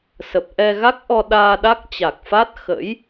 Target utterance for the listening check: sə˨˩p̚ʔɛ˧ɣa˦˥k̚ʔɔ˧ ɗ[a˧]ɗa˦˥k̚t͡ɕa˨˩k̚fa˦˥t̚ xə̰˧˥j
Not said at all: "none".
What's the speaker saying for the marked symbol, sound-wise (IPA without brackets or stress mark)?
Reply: aː˧